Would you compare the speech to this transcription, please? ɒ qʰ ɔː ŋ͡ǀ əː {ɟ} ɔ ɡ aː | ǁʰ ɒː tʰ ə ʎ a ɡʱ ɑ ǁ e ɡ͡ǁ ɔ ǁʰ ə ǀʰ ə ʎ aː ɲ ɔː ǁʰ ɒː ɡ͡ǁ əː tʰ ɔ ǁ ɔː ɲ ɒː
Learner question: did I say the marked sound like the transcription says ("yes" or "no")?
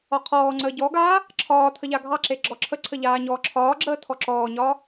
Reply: yes